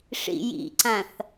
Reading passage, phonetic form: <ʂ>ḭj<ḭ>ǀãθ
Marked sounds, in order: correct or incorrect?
correct, correct

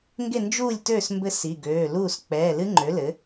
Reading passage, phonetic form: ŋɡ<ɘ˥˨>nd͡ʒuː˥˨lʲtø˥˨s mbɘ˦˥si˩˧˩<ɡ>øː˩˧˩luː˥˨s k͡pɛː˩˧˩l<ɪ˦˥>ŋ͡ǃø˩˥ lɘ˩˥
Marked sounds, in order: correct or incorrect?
incorrect: e˥˨, correct, incorrect: ɨ˦˥

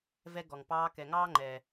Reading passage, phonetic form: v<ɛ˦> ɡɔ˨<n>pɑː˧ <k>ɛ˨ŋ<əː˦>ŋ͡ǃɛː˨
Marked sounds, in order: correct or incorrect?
incorrect: ɛ˧, incorrect: ŋ, correct, incorrect: ɑː˦

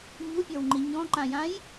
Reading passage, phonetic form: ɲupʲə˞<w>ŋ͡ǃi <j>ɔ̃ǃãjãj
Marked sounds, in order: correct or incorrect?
correct, incorrect: ɲ

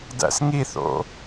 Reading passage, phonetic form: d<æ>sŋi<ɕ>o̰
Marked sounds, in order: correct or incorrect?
incorrect: æ̰, incorrect: θ

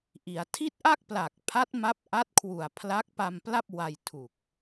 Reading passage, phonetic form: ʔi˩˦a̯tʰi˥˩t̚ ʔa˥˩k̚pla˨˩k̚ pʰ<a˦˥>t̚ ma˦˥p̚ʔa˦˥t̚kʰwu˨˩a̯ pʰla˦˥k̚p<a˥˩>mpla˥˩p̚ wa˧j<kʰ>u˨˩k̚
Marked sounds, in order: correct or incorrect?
correct, incorrect: a˧, incorrect: tʰ

